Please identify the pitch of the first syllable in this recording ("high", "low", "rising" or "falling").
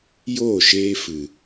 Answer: falling